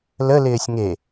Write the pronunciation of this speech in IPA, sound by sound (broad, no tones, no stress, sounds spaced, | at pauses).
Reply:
l ə l ɪː sʲ ŋ e